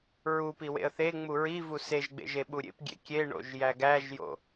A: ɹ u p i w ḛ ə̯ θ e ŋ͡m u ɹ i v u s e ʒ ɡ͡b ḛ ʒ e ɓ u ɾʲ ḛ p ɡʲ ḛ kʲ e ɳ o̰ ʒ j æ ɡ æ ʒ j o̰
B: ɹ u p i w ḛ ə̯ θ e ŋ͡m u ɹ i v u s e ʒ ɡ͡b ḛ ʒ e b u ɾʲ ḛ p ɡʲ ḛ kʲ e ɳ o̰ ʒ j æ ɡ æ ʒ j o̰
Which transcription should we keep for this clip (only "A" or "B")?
A